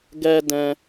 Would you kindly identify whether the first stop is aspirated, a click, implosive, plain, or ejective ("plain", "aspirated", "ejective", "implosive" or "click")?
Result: plain